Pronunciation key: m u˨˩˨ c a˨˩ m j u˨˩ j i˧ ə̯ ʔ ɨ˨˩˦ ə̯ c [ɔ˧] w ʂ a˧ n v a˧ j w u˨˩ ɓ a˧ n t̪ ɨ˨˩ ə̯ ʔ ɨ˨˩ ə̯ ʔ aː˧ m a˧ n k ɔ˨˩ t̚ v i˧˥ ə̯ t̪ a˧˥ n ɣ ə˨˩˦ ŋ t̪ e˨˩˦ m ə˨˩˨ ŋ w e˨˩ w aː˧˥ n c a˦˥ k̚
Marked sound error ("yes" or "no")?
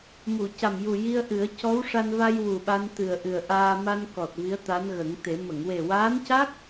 yes